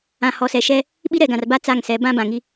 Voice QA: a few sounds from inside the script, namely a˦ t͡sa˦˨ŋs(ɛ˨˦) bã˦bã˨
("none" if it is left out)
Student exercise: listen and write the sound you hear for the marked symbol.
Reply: ɛ˨˦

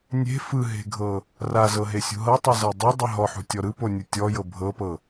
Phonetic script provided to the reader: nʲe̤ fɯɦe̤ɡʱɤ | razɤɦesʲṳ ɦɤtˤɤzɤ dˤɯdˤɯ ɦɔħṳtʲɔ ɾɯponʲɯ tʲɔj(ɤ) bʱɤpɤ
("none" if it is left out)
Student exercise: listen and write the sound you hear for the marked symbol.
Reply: ɤ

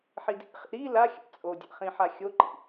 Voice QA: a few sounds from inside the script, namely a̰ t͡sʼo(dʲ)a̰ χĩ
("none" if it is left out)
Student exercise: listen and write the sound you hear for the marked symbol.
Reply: dʲ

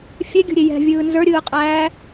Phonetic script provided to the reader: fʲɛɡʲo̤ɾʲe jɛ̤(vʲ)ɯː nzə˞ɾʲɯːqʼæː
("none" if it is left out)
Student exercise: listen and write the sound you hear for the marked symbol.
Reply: vʲ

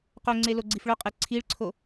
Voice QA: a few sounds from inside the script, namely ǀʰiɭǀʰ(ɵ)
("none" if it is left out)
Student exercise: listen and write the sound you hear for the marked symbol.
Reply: o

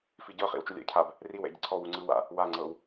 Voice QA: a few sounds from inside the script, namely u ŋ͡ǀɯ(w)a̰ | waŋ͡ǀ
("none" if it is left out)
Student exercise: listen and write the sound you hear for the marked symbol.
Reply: w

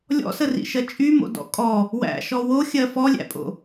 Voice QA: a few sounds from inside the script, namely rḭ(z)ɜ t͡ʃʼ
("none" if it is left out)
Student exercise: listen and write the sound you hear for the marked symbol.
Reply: ʃ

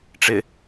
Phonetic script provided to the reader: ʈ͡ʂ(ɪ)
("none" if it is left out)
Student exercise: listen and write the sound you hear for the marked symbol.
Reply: ɪ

